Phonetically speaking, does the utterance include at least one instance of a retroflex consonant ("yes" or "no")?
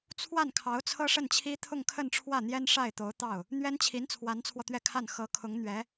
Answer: yes